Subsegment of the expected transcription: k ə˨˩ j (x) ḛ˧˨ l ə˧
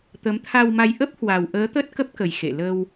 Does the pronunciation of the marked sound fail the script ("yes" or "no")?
no